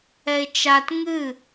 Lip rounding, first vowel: unrounded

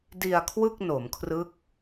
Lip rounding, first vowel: unrounded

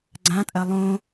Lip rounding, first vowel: unrounded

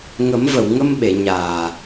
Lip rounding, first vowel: unrounded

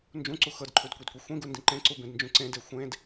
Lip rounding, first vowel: rounded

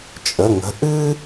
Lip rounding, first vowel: unrounded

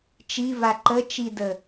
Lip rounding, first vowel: unrounded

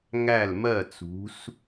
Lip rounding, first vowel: unrounded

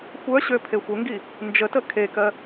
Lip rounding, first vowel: rounded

